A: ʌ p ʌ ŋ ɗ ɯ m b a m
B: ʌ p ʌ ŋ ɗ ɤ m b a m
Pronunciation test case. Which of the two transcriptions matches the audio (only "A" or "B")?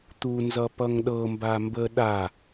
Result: B